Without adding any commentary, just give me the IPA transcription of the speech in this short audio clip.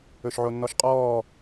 ɵ ʃ ʕ o nː ɔ ʃ qʼ ɔː

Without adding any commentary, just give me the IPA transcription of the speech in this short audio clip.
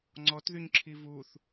ŋ͡ǀ ɔ t ð y ɲ ǁʰ i v u θ

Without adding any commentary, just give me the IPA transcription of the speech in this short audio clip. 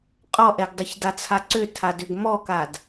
qʼ ɔ ʔ ɛ ɡ dˤ ʏ ç d a t͡sʰ a ǀ ʏ tʰ a d ʏ ɡ m ɔ k a d

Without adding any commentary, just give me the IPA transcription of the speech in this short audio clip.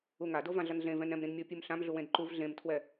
u ŋ a d o v ã ɮ ʌ n ɮ ẽ v ɛ̃ n ɾ ɛ̃ m ɾ ĩ n mʲ o pʲ u m ɬ ã m ɮ u w ẽ d ǃ u v ɮ ẽ m tʰ w ɛ

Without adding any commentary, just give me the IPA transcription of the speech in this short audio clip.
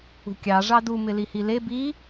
ṳ kʲ ɑ ʐ ɑ d u m ɪ l i h i l e b i

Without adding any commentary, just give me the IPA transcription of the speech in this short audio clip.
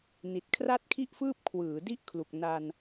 n i˨˩ t̚ kʰ r a˥˩ t̚ kʰ i˥˩ ʔ f ɯː˥˩ p̚ kʰ w ɯː˩˦ d i˥˩ ʔ kʰ l u˨˩ k̚ n a˧ n

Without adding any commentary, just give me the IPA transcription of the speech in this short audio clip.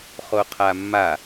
χ o qʰ a mː a

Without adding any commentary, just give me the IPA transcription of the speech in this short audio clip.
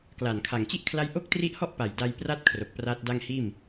k l aː˨˩ n kʰ a˨˩ ŋ t͡ɕ i˥˩ ʔ kʰ l a˦˥ j ʔ o˥˩ k̚ t r i˦˥ ʔ h ɔ˥˩ ʔ p a˨˩ j d a˧ j p r a˦˥ t̚ kʰ r o˨˩ k̚ p r aː˦˥ t̚ d a˥˩ ŋ h iː˥˩ m

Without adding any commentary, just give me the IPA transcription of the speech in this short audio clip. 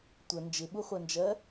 tʷ ə n d͡ʒ ɪ ɓ u χʷ ɜ n d͡ʒ ɜ

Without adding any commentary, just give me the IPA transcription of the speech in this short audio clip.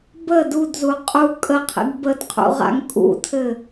b ə d u d z u qʼ u kʼ ə qʰ ḭ ɡ b ə d qʰ ṵ ʁ a̰ ŋ kʼ ṵ tʰ ɘ

